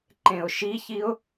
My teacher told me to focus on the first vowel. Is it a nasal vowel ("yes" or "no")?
yes